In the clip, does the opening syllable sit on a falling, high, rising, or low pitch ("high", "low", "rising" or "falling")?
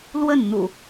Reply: falling